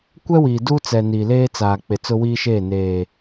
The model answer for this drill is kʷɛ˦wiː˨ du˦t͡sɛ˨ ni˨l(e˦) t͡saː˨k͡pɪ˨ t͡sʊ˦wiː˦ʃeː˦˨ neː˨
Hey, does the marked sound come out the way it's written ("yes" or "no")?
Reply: no